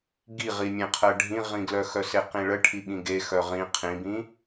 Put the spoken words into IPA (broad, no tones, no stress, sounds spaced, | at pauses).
ɡ i ʁ i mʲ ẽ qʰ ɜ ɖʱ ĩ ʁ ĩ ɡ l œ x œ s e q ĩ ɭ ə ʈʰ i ɠ ĩ ɡ e x œ ʁ ĩ qʰ ĩ b ĩ